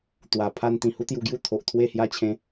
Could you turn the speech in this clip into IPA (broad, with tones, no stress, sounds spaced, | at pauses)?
t̪ w a˨˩ pʰ a˧ n t̪ ĩ˨˩ h u˦ t̪ j u˧ ɡ j u˦ t̪ʰ o˨ ʔ t̪ʰ w e˥˧ h j a˥˧ t͡ɕʰ ẽ˦